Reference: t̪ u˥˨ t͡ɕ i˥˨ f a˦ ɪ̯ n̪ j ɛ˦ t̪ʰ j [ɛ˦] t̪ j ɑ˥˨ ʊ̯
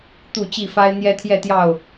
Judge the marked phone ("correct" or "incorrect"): incorrect